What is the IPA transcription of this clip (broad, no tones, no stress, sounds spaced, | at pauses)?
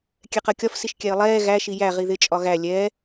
kʲ ɛ q ɜ kʲ ɒ f s i ʃ kʲ æ ə̯ lˠ ɛː ɣ æ ʃ i j æ ʁ i ð ɪ t͡ʃʼ ɒ ɣ æ lʲ ɛ